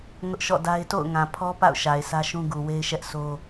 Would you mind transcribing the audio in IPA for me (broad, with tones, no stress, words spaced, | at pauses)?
ŋʊ˦ʔʃɔ̰˦˨da˦ɪ̯ to̰˦˨ʊ̯ŋã˨ pʰɔ˦pa̰˦˨ʊ̯ ʃa˨ɪ̯sʰä˦ʃũ˦ɡu˨ we˦ɪ̯ʃɛ˦ʔsʰo˦